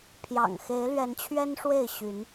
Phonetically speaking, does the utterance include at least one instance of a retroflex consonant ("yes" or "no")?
yes